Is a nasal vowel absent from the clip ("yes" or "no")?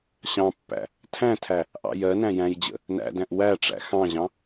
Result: no